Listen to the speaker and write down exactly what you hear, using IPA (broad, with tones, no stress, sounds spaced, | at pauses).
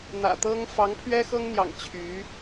n̪ ä̰˨˩ t̪ ɤ˥ ŋ f ɑ˧˥ ŋ pʰ ɥ ɛ˥ x ɤ˥ ŋ n̪ j ɑ̰˨˩ ŋ t͡ɕʰ y˧˥